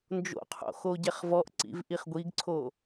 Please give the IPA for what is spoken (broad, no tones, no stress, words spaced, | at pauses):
nd͡ʒo̰qʰo̰ xoɟɛχvɔʔǀḭv ʔiχɡʷiɡǀʰo